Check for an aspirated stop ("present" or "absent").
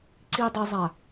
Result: absent